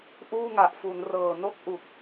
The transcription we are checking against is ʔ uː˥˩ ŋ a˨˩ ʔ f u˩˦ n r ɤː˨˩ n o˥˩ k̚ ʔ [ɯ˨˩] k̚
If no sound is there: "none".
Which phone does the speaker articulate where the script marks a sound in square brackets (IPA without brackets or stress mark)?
u˨˩